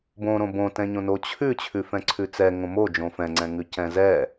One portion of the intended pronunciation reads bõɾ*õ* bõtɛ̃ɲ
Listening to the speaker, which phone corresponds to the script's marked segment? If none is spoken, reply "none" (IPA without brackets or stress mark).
õ